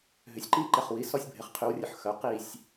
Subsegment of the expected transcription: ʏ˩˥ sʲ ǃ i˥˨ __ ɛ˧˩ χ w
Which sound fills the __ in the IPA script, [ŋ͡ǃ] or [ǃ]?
ǃ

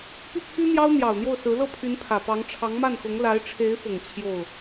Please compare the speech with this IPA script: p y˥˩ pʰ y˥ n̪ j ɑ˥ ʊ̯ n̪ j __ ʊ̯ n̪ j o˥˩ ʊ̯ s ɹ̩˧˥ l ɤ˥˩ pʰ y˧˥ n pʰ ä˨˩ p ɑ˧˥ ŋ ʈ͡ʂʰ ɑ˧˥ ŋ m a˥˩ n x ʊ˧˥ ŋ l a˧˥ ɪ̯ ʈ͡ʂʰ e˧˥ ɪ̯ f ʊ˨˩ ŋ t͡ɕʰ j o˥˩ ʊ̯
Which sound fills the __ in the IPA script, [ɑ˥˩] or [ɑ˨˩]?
ɑ˨˩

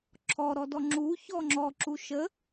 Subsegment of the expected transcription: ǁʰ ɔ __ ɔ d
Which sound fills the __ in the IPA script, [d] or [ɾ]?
ɾ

